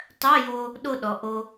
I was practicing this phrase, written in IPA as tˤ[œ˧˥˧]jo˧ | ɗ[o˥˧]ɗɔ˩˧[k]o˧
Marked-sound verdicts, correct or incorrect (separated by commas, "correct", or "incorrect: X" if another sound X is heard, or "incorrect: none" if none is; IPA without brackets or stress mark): correct, correct, incorrect: ʔ